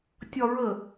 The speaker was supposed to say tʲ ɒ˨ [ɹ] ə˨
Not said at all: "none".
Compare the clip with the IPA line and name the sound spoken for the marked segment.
ɹ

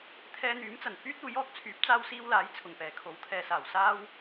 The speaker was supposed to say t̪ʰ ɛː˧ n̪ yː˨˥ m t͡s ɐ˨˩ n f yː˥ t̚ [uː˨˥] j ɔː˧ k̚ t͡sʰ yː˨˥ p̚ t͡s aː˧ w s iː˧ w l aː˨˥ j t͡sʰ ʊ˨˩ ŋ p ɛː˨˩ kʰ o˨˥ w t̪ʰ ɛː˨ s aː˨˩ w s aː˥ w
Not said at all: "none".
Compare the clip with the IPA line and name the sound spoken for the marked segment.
uː˨˥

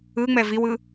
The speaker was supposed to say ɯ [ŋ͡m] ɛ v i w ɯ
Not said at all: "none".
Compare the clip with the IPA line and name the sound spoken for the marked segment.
ŋ͡m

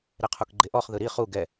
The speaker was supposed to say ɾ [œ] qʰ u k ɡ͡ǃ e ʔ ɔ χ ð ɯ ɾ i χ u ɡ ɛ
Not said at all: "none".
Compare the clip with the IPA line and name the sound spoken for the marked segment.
ɛ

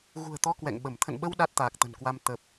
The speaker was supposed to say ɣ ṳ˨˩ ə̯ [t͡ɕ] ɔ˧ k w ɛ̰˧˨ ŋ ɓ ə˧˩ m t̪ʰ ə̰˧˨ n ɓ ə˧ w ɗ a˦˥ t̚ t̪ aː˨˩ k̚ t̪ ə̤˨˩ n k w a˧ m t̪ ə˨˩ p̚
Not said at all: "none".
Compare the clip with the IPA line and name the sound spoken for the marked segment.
t̪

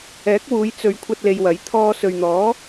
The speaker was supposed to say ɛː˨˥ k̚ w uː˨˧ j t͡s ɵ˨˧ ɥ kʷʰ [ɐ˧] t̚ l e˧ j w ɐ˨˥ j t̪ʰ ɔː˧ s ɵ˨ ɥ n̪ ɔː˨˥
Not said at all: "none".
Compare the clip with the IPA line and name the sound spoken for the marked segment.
ɐ˧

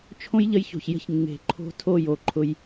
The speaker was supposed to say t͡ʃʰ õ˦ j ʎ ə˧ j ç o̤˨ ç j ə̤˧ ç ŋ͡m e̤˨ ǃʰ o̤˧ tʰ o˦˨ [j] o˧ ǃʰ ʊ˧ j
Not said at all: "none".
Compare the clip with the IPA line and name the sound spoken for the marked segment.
j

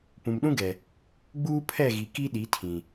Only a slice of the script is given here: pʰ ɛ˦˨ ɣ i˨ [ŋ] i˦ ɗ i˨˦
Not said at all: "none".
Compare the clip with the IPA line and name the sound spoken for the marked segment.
k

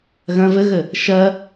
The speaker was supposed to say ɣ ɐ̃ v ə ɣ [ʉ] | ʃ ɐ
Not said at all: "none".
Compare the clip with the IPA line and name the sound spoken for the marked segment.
ə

